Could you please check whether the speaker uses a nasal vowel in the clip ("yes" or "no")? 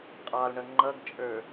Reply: no